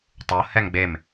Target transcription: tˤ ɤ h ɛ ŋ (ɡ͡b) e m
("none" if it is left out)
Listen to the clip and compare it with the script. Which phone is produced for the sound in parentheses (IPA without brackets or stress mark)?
ɡ͡b